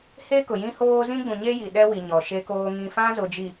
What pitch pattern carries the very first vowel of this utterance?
high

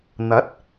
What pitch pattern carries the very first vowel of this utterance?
rising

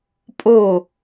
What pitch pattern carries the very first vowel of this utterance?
falling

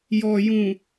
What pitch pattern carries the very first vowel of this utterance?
low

